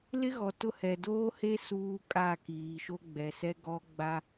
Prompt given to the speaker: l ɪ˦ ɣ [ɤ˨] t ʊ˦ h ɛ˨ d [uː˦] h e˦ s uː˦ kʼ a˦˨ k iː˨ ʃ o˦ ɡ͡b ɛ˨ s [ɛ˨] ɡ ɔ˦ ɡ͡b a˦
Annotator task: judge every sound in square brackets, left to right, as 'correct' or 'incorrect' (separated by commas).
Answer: incorrect, incorrect, incorrect